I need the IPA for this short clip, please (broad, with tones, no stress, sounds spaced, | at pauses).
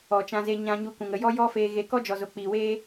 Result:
ɔ˨ t͡ʃ ã˧ z e˧ ɲ ã˧ ɲ u˧ k ũ˨ ŋ ə˧ j ɔ˦ j ɔ˦ f eː˧ ɣ e˧ k ɔ˦ d͡ʒ ɔ˨ z o˨ k͡p iː˨ w eː˦